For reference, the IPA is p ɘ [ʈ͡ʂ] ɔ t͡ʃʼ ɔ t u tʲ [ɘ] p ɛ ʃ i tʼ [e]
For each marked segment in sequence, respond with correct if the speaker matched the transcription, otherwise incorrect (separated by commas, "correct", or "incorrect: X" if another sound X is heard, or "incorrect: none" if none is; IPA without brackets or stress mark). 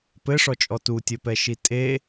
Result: incorrect: ʂ, correct, correct